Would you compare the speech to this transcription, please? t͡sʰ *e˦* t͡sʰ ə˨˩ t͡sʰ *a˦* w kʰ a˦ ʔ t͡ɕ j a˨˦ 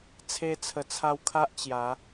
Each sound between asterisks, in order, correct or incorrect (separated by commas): incorrect, incorrect